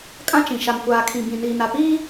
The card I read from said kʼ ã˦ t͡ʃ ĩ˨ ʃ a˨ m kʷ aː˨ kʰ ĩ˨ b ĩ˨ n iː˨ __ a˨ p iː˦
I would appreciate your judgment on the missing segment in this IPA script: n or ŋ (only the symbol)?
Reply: n